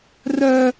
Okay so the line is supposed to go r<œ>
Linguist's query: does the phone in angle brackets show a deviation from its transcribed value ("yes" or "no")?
no